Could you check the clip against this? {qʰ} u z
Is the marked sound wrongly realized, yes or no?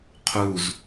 no